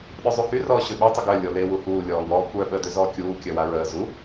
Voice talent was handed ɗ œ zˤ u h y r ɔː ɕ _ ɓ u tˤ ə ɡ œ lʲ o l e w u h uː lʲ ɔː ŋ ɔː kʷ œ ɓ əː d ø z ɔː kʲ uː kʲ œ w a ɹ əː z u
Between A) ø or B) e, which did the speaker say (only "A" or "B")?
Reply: A